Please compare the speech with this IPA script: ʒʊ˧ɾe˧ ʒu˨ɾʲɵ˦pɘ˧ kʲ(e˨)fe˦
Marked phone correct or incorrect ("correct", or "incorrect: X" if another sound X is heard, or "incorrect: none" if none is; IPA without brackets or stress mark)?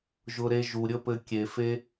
correct